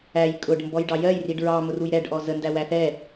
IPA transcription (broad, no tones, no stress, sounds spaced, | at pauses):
æ j kʼ ʊ ɖ m b ɔ j ɖ ɑ j ɜ j r i ɖ ɹ ɑ m ʊ r u j ɾ ɛ ɖ ʔ ɔ z ə n d æ w æ θ ɛ